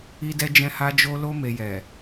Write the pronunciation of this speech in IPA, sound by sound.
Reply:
i˧ d ɛ˧ d͡ʒ ɛ̃˧ h a˧ d͡ʒ o˧ l o˧ m e˨ j ɛ˨

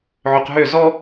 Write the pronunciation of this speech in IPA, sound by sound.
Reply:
ʕ ø q ɦ ø z ɔ

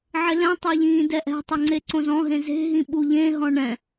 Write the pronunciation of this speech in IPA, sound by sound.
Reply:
ʕ ɪ l ɛ̃ tˤ ɛ ʎ ĩː d ɛ ʔ ɛ̤ tˤ ʊ ŋ͡ǀ e ǀ õ z ɔ̃ ɦ ẽ z e̤ ɦ ĩ ɓ u ʎ ẽ ɦ ɔ̃ ɳ ɛ̃

